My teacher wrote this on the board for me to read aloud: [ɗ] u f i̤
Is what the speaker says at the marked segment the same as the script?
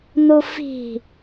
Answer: no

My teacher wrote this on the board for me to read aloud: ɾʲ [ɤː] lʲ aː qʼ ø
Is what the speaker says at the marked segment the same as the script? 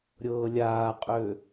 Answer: yes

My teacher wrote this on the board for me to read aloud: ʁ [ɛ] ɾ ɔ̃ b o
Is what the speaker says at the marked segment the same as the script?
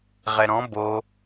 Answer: yes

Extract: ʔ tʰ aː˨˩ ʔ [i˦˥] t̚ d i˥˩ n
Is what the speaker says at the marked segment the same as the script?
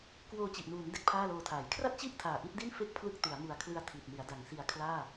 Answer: yes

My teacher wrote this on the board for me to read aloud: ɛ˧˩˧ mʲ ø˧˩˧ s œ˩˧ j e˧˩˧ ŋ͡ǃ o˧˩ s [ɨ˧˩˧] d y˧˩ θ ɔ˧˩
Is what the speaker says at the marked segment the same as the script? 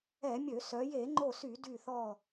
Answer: no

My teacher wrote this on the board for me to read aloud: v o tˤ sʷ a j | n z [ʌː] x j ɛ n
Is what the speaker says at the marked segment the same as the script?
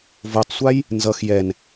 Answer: no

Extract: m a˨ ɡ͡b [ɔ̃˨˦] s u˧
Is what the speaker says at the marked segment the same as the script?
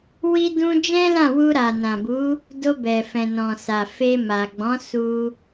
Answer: yes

